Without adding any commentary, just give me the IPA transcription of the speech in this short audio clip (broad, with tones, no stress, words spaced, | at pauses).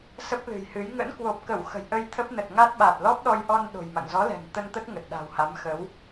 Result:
sə˦˥p̚lɨ̤˨˩jhɨ˨˦j ŋə̰˧˥nkwo˨˩p̚kə˧˩w xə̤˨˩jʔə˧jt̪ʰə˦˥p̚ nə˨˩t̚ŋa˦˥t̚ ɓa˨˩t̚lɔ˦˥p̚ɗɔ˧jʔɔ˧n ɗo̤˨˩jma̰˧˨ŋ zɔ˨˦lɛ̤˨˩ŋ t̪ə˧nt̪ə˦˥t̚ ŋə˨˩t̚ɗa̤˨˩wha˨˦mxə˨˦w